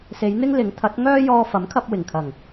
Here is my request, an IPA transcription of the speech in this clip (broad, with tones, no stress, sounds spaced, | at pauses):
s e˨˧ j n̪ ɪ˥ ŋ l ɪ˨˥ ŋ t̪ʰ ɐ˨˥ t̚ ŋ œː˥ j ɔː˧ f ɐ˨˥ m kʰ ɐ˧ p̚ w ɪ˨˩ ŋ kʰ ɐ˨˩ ŋ